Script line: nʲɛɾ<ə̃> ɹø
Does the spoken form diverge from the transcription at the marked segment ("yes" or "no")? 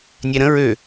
no